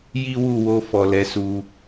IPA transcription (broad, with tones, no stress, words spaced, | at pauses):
ji˦wu˦˨wo˧ fɔ˨lɛ˨˦su˧